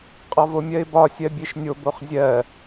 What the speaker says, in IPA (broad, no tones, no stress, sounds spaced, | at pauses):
qʼ ɒ v o mʲ ɜ ɪ̯ b ɒ sʲ ɜ bʲ e ʃ nʲ o b o χ zʲ ɜ